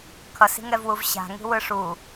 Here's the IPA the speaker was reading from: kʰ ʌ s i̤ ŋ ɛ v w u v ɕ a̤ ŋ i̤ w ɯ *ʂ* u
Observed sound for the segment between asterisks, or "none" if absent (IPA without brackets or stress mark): ʂ